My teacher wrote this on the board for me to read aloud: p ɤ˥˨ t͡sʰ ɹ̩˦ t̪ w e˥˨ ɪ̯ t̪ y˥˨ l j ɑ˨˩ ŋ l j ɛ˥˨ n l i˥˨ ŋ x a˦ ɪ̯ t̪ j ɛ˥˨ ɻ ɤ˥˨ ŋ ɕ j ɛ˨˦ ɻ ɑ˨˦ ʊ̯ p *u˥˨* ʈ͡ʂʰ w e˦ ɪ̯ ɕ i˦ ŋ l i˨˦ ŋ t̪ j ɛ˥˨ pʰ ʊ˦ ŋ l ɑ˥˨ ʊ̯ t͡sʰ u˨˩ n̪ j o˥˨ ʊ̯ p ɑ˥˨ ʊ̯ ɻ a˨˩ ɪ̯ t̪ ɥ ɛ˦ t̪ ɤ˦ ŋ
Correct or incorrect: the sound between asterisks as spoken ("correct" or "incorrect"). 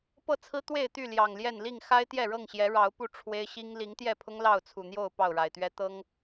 correct